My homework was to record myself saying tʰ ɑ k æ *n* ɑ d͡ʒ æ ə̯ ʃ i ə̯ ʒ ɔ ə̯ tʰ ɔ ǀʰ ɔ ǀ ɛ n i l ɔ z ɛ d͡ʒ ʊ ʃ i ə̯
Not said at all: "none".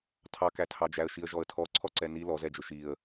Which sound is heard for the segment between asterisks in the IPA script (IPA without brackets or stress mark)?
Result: tʰ